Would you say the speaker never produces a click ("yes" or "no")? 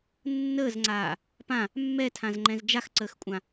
no